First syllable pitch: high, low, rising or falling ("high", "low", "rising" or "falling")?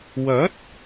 rising